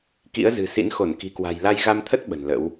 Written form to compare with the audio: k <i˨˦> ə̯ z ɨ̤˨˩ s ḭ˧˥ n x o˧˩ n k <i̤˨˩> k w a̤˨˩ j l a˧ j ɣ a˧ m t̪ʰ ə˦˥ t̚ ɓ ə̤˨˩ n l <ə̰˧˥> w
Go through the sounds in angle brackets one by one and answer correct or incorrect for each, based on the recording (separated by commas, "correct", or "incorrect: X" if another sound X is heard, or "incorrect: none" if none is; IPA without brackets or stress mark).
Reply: incorrect: ḭ˧˥, correct, correct